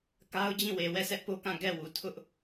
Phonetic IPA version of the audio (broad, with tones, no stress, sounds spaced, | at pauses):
k a˦ ʊ̯ d͡ʑ ĩ˦˨ w e˨ w ɛ˦˨ s ɛ˦ ʔ p o˦ k ã˦˨ ɡ ɛ˦˨ w u˨ tʰ ʊ˦ ʔ